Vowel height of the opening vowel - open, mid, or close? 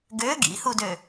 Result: mid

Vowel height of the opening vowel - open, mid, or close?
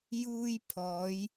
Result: close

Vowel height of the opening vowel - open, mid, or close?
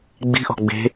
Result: close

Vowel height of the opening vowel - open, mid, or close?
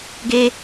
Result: mid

